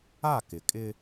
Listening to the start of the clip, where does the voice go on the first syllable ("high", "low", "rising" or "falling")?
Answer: falling